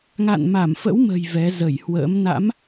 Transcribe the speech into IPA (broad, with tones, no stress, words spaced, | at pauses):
ŋa̰˧˨nma˧˩mfə̰˧˥wmə̤˨˩j vɛ˨˦ zə˧˩jhwə̰ː˧˥m na̰˧˥m